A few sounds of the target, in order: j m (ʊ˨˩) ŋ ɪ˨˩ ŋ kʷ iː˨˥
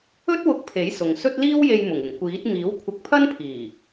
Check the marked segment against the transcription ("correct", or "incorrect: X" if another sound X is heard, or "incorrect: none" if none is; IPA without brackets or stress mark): correct